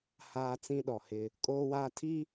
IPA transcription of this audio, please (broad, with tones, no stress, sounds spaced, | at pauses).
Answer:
h aː˦ t͡s ĩ˦ ɗ ɔ˨ h ɪ˦ | kʼ oː˦ w aː˦ tʰ i˦